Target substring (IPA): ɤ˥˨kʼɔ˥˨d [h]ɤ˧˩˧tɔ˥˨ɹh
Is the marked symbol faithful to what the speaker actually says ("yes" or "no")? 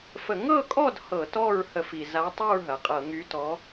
yes